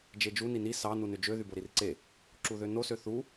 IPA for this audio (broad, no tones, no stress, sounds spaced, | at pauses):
d͡ʒ e d͡ʒ u n i n i s ɑ n u n ø d͡ʒ ø ð y b o ɾ i r ǀ e | ǁ u ð ø n o s ø θ u